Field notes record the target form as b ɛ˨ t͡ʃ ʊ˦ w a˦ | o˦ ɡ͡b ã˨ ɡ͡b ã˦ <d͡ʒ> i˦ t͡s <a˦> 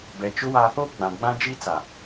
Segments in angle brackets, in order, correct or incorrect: correct, incorrect: a˨

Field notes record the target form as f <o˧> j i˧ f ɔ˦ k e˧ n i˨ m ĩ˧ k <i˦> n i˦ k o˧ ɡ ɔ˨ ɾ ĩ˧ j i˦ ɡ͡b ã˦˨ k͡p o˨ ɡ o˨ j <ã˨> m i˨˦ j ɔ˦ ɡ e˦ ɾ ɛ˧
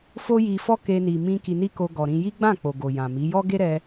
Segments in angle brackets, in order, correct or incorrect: incorrect: o˦, incorrect: i˧, correct

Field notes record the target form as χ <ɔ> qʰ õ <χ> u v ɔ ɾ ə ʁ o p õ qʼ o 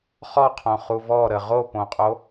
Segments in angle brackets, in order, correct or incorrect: correct, correct

